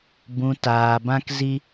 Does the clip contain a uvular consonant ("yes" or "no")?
no